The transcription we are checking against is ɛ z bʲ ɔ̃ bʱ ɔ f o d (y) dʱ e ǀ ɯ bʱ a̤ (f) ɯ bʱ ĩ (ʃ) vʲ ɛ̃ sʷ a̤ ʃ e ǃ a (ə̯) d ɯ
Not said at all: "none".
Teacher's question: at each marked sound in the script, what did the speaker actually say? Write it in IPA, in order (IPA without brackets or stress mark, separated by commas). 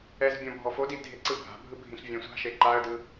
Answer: i, bʱ, ɬ, ə̯